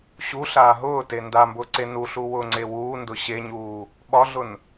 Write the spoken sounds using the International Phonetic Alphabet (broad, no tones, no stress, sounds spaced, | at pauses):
ɕ u ɬ aː ɦ ʊː t e n d a m b ʊː ǀ e n u ɬ u w ʊː ŋ͡ǀ e w uː n d ʊ ɕ e ɲ uː | ɓ ɒ ɮ ʊ n